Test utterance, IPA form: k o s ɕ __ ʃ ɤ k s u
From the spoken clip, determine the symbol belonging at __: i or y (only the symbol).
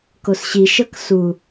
i